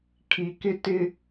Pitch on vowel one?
low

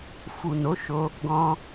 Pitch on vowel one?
low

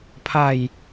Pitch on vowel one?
falling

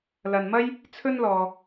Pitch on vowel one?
low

